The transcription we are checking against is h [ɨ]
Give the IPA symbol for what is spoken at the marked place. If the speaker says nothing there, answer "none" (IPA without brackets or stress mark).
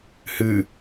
ɨ